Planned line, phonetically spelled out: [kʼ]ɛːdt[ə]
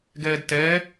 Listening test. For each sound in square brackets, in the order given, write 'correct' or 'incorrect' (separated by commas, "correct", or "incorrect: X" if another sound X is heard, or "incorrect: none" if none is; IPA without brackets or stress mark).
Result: incorrect: ɡ, incorrect: ɛ